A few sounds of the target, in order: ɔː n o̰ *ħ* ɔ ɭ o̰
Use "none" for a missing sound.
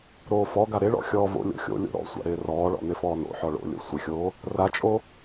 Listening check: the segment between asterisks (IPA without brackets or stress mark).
ħ